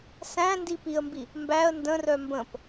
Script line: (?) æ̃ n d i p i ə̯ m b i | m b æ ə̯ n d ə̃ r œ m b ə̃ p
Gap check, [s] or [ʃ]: s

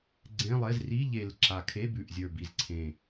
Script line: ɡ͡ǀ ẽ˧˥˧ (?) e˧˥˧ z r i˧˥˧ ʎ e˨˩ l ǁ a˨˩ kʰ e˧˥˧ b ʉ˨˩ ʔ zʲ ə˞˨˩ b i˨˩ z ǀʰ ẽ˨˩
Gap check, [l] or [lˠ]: lˠ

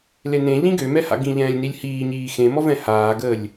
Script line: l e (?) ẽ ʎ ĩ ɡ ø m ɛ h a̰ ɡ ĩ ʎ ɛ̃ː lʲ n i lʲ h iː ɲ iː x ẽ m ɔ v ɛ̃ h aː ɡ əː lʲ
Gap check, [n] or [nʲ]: n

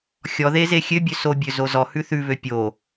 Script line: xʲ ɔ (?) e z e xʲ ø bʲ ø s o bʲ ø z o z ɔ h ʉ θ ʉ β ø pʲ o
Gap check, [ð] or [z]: ð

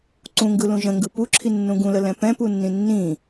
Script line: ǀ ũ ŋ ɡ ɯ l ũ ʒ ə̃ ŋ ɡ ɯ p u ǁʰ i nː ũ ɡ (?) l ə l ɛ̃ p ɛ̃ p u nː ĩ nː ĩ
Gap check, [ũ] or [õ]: ũ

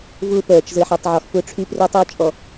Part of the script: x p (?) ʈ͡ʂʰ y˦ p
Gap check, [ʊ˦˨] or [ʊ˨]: ʊ˦˨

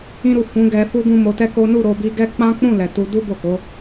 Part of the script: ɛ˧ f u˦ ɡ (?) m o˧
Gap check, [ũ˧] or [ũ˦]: ũ˦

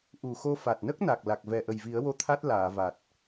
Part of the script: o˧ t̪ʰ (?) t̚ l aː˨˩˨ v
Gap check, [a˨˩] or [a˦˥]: a˦˥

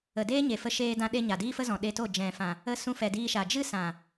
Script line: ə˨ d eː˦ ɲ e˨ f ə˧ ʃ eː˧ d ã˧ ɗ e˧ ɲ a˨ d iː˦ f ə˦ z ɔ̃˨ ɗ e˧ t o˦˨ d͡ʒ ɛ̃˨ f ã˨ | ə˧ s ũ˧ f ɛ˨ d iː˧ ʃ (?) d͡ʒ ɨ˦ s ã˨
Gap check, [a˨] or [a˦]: a˨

